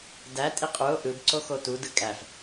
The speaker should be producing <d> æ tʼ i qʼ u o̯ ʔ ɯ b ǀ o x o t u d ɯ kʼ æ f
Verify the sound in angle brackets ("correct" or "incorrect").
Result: correct